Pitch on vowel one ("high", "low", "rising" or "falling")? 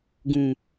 low